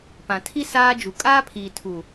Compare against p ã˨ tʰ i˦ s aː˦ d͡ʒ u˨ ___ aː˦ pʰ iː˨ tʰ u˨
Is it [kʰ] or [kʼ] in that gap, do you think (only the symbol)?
kʼ